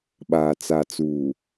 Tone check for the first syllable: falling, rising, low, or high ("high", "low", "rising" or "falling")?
low